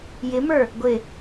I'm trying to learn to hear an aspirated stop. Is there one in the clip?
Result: no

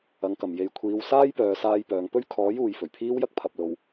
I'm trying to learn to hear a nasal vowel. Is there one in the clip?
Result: no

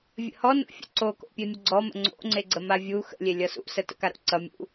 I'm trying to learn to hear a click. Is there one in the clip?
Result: yes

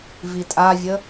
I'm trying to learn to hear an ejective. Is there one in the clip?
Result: yes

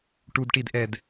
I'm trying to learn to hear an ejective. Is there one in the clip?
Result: no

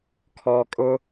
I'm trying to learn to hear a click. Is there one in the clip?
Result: no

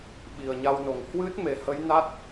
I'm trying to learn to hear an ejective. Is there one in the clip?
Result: no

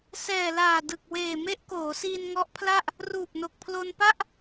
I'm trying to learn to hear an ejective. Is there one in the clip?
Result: no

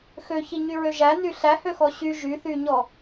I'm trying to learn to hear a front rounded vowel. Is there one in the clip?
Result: yes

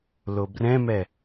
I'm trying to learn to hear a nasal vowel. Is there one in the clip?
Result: yes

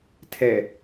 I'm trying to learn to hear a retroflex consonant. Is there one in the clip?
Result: no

